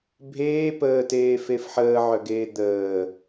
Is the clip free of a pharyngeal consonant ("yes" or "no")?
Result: no